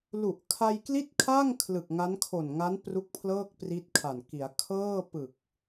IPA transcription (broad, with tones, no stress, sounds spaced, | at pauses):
l u˨˩ ʔ kʰ a˧ j k l i˥˩ t̚ kʰ a˥˩ ŋ kʰ l ɯ˨˩ k̚ ŋ a˦˥ n kʰ o˨˩ n ŋ a˦˥ n p r u˦˥ k̚ pʰ l ɤː˥˩ k̚ p r i˦˥ t̚ kʰ a˨˩ n k i˩˦ a̯ kʰ ɤː˥˩ p ɯ˨˩ k̚